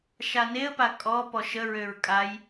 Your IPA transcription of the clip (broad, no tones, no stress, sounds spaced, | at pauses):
ʃ a n e ə̯ p a kʼ ɔ p ɔ ʃ ə ɹ ø ɹ kʼ a j